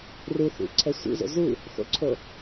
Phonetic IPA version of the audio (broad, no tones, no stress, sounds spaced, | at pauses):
r u θ ṵ ǀʰ ɛ sʷ ḭ z o̰ z u | x o̰ ǀʰ o